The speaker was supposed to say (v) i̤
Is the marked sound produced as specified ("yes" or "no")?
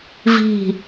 yes